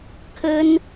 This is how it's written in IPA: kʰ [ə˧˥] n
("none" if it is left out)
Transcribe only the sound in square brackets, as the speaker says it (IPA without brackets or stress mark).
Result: ə˥